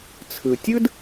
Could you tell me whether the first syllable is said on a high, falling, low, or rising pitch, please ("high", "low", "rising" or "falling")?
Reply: low